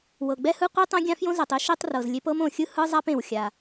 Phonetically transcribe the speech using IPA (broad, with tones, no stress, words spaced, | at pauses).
wɤ˩ɡ͡bɛ˥hɯ˥ qʷi˥tˤõ˥ɡʲã˥ fjõ˥zɛ˩tˤi˥ ʃi˥tˤrɤ˩zlʲe˥p ɤ˥mõ˩xʲɯ˥ hɯ˥zˤa˥pẽ˩w xʲa˩